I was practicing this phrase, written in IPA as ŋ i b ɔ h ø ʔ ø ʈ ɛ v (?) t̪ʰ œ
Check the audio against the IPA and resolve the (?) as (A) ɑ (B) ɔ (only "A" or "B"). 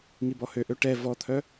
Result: B